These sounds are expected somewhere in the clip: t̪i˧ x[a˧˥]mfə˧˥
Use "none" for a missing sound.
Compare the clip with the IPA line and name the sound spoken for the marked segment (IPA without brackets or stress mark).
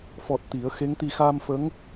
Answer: a˧